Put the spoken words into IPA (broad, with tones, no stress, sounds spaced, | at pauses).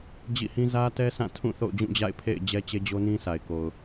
d͡ʑ ḭ˦˨ h ĩ˦ z ä˦ t ɛ˦ s ã˦˨ tʰ ũ˦˨ θ o̰˦˨ ʊ̯ d͡ʑ ũ˦˨ d͡ʑ a̰˦˨ ɪ̯ pʰ ḛ˦˨ ɪ̯ d͡ʑ ɛ˦ t͡ɕ e˦ d͡ʑ o˦ n ĩ˦ sʰ a˨ ɪ̯ k o˨ ʊ̯